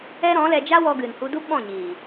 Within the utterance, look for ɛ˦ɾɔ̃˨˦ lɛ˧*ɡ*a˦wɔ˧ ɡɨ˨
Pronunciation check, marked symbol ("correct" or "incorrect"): incorrect